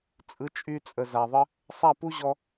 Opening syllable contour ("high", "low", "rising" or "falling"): rising